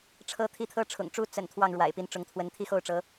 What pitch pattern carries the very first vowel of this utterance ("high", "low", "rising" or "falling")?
rising